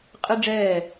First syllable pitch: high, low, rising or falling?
high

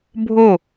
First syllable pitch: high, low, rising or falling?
falling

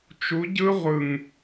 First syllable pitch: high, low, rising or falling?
rising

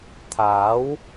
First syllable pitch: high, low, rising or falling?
rising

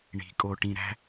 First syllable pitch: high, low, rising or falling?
rising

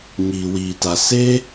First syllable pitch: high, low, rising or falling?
low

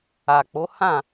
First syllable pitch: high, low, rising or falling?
low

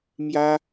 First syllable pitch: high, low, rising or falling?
high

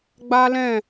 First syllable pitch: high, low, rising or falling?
high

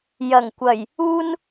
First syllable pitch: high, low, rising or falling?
low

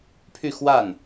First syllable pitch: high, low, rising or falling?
falling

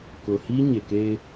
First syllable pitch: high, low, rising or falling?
low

